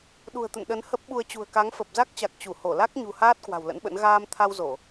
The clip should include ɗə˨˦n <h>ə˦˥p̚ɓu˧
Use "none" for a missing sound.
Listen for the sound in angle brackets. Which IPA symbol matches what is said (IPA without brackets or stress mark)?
h